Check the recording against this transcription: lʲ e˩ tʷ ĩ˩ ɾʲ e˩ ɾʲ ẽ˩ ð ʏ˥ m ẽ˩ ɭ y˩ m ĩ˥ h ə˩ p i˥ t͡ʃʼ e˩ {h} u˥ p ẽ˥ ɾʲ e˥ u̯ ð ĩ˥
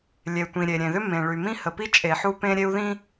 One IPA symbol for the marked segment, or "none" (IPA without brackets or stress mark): ħ